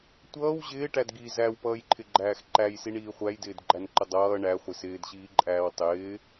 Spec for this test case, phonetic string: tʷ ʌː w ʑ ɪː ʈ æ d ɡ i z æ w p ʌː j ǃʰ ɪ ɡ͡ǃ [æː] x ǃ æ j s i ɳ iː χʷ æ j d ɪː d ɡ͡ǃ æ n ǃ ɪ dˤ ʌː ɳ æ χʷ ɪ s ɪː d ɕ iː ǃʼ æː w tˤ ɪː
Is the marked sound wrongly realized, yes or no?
no